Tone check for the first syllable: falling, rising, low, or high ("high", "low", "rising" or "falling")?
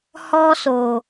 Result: high